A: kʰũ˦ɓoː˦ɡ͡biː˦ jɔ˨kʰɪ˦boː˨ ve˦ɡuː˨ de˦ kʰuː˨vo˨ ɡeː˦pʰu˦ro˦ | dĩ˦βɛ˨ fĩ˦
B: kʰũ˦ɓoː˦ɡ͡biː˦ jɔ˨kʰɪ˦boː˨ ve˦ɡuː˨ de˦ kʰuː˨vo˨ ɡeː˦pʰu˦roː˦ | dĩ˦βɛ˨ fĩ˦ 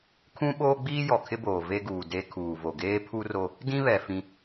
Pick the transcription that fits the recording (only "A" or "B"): A